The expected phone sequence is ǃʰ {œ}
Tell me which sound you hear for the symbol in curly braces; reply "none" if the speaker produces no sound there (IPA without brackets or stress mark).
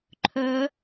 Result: œ